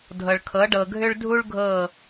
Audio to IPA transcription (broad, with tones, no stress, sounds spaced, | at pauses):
dʱ ɤ˨ ɭ kʰ ɤ˨˦ ɖ ɤ˨ ɡʱ ʏ˦ ɭ dʱ u˦ ɭ ɡʱ ɤ˦˨